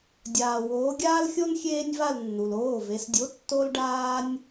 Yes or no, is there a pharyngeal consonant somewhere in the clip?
no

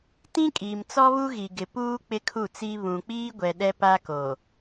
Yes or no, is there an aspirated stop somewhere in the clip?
yes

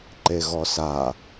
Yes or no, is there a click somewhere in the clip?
yes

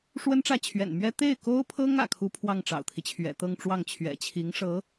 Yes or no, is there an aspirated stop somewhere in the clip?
yes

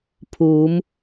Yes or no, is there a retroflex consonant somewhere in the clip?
no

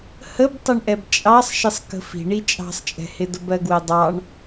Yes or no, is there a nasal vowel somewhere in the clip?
no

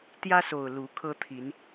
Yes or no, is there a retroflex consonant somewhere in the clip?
no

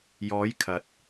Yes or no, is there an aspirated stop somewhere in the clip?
yes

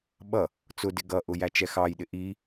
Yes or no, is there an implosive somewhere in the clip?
yes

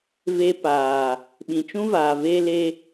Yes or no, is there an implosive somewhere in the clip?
yes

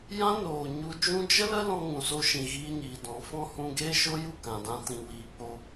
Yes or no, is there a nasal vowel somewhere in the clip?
yes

